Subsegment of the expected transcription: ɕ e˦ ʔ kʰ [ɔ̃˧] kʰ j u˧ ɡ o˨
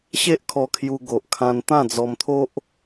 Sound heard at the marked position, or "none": ɔ˧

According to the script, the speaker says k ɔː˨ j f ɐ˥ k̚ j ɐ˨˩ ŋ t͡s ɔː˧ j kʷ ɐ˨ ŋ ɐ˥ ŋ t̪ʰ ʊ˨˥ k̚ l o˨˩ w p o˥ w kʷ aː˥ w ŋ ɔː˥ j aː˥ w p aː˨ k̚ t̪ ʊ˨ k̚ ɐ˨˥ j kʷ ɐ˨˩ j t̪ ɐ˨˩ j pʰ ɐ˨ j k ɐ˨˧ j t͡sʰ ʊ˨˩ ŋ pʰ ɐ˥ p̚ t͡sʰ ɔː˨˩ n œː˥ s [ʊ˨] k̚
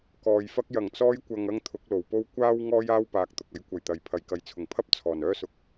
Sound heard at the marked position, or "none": ʊ˨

